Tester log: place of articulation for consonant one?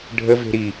retroflex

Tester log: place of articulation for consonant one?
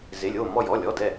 alveolar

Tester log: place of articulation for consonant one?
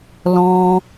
alveolar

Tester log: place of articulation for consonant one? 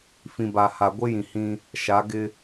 labial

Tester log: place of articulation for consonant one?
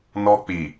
alveolar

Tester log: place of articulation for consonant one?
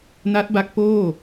alveolar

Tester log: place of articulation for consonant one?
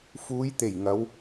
labial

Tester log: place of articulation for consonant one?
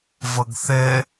labial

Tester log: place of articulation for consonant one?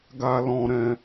velar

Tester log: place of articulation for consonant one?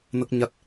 alveolar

